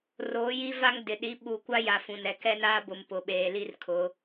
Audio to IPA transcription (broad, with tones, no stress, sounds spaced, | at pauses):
r oː˨˦ j i˦ v a˦ ŋ d ɪ˨ ɗ i˨˦ ɓ u˨ kʷ a˦ j a˨ f ũ˨ n ɛ˨ k ɛ˦ n aː˦ b ʊ˨ m p ʊ˨ ɓ eː˨ l i˦ r kʰ ʊ˨˦